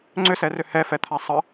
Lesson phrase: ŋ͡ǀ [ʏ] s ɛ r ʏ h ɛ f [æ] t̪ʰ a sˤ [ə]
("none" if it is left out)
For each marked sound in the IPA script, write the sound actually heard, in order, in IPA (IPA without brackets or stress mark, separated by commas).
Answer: ʏ, ɛ, ə